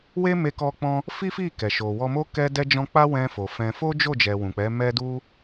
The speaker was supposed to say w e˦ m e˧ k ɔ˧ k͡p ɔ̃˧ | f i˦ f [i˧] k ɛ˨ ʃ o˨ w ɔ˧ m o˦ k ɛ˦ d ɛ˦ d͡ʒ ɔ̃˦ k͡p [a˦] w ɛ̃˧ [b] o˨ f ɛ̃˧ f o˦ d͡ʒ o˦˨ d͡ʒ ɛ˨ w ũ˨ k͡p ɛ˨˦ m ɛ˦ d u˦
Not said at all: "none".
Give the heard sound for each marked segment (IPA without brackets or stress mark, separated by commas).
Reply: i˦˨, a˦, f